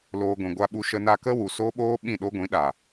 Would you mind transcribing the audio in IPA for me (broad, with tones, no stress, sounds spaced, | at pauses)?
l oː˧ ɡʷ ĩ˨ ɡʷ a˦ ɓ u˦ ʃ ə˧ n a˧ k ə˦ w u˨ s o˦ ɓ oː˦ ɓ ĩ˦˨ ɗ o˦ ɡʷ ĩ˨˦ ɗ a˨